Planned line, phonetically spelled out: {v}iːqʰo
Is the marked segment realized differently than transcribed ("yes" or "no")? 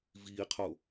no